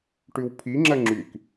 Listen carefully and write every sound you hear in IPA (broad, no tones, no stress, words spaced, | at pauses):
ʈʉwpʰi ŋ͡ǁɜŋ͡ǁyk